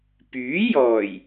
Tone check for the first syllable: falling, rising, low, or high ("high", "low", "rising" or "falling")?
rising